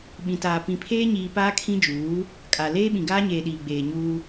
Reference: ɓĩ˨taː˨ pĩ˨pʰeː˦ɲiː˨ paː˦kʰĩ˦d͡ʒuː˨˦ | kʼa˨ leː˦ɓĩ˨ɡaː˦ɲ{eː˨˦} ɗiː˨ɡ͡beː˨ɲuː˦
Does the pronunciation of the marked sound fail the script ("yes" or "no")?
yes